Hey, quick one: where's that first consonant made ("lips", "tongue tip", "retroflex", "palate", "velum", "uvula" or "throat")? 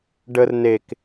retroflex